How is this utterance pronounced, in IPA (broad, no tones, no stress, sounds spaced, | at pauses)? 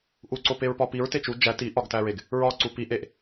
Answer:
ʔ u ǀ o p e ɹ p ɒ p i ɹ t e t͡ʃ u d͡ʒ æ t i ʔ ɒ ɡ t æ ɹ e ɡ | ɹ ɒ ǀ u p i ʔ e ʔ